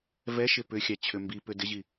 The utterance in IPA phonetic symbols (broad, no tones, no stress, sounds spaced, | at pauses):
v ɛ ʃ ɪ p ʏ xʲ a t͡ɕʰ ʏ m b i p ʏ d ɪ ʑ i